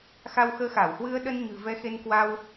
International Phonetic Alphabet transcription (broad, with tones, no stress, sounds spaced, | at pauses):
x a˧ w x əː˧ x a˧˩ w h w ɨ˧ ə̯ ɗ ə˧ n ɲ ɨ̤˨˩ v ɛ˨˦ x e˧ n k w a˧ w